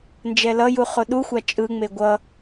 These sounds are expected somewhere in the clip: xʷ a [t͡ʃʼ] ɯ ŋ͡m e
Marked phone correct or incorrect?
correct